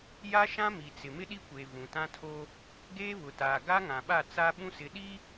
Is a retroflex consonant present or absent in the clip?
absent